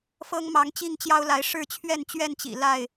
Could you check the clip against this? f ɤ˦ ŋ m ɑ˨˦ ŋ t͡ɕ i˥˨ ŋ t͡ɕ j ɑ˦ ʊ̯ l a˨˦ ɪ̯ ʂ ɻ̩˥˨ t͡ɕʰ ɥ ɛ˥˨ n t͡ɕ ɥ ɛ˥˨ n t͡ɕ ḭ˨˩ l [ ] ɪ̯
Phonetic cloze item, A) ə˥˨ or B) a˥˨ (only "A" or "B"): B